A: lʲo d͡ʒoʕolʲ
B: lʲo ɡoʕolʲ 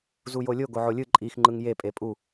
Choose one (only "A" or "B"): B